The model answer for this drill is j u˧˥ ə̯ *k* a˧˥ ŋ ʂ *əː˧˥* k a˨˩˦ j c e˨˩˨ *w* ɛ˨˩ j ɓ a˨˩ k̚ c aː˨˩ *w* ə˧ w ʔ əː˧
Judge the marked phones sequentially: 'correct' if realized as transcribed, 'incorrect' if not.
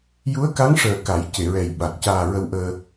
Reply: correct, incorrect: əː˨˩, incorrect: ɹ, incorrect: ɹ

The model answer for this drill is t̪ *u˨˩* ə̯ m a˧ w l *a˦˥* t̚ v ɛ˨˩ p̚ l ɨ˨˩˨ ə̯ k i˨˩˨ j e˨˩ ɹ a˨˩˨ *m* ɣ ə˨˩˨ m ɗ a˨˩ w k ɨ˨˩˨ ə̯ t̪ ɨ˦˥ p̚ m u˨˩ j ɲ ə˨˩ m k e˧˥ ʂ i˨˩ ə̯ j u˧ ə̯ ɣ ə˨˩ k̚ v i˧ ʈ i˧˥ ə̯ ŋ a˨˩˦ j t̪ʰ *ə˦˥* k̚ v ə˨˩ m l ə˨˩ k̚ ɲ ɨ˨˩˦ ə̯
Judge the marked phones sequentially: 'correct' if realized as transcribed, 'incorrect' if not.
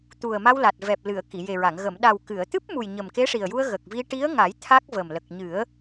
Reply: correct, incorrect: a˨˩, incorrect: ŋ, incorrect: a˦˥

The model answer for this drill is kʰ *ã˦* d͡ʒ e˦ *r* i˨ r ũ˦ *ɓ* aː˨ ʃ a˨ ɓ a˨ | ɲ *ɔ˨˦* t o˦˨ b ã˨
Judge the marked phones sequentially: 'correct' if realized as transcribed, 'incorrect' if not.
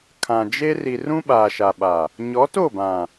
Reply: incorrect: ã˨, correct, correct, correct

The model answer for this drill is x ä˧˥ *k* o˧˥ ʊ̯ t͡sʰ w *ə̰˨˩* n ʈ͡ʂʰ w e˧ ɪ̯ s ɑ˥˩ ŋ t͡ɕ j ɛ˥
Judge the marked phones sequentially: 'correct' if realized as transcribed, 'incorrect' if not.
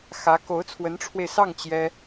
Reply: correct, incorrect: ə˧˥

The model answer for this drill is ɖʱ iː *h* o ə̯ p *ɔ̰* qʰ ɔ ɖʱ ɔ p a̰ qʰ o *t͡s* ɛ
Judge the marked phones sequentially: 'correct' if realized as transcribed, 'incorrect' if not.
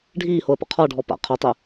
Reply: correct, incorrect: o̰, incorrect: tˤ

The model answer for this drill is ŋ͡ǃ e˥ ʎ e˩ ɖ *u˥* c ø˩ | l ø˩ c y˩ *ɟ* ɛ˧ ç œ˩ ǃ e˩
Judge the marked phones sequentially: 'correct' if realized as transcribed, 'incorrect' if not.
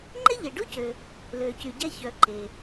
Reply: correct, correct

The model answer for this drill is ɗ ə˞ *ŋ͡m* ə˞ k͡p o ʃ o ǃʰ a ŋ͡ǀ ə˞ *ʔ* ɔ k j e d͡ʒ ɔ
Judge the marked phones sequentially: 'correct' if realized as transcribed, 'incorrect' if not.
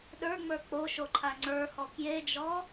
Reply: correct, incorrect: h

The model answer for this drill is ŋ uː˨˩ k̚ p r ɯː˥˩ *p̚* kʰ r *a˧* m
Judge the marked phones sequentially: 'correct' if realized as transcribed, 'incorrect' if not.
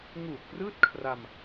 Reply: incorrect: t̚, correct

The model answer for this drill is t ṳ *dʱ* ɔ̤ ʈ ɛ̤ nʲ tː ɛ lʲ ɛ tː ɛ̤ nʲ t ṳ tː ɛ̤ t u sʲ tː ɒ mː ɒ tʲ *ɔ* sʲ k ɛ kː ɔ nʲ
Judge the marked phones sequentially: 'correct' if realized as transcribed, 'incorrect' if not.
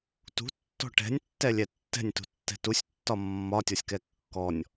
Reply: incorrect: tː, correct

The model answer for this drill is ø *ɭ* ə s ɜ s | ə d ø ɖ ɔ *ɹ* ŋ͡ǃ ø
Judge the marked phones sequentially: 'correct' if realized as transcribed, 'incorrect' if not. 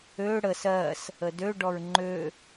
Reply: incorrect: ɽ, correct

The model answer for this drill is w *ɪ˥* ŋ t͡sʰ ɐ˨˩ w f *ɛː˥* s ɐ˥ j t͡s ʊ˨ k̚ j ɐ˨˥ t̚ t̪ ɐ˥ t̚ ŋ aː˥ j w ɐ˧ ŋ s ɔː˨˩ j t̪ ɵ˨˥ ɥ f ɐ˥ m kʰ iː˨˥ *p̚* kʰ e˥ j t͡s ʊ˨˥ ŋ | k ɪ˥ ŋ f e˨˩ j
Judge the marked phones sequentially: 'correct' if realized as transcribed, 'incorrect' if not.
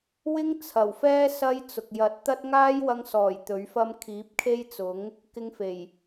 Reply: correct, correct, correct

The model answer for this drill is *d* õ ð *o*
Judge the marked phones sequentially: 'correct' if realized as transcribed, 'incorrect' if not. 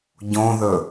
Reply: incorrect: ɟ, incorrect: ɵ

